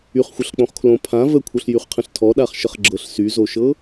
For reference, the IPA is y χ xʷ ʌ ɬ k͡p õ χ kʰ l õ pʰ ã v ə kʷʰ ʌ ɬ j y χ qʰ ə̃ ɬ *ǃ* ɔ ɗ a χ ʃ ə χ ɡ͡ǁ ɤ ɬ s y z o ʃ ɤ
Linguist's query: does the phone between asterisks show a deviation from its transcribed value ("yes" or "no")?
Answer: yes